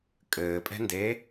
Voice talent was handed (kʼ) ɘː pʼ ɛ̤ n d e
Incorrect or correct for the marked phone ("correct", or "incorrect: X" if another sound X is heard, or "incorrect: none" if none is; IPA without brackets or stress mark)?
correct